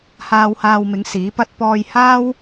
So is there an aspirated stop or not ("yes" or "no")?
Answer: no